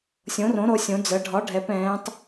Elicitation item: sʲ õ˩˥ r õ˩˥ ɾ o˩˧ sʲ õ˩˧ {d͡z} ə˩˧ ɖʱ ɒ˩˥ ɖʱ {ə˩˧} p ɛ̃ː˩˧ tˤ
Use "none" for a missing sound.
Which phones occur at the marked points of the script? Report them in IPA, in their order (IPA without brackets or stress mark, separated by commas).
d͡z, ɛ˩˧